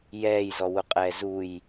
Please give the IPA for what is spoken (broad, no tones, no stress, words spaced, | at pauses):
jɛːjzɔwʊqʼɛː zuj